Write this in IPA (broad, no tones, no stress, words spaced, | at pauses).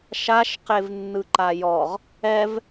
ʃaʃ qevnːɯǃajɔʁ | ɛv